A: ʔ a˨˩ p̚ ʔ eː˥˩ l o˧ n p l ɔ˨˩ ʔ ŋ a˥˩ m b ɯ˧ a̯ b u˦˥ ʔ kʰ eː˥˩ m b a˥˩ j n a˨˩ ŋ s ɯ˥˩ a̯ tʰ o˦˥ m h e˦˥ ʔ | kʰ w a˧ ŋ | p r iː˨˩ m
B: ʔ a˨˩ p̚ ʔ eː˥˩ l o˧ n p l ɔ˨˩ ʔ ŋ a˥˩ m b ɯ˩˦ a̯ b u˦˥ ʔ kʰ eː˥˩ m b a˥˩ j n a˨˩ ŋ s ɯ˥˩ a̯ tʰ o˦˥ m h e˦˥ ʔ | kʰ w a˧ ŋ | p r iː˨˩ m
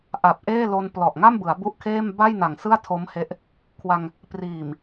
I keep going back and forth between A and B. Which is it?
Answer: B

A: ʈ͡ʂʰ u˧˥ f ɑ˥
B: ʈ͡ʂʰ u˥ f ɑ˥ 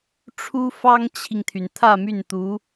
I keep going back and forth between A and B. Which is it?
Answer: B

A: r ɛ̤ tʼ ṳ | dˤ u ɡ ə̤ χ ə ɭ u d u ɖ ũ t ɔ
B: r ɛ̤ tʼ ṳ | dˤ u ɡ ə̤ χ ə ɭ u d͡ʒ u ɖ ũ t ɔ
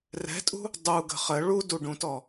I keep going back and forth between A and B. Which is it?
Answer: A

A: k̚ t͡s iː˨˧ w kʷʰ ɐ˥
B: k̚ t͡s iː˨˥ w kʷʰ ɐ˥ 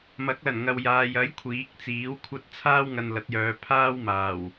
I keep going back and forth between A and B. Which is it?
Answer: B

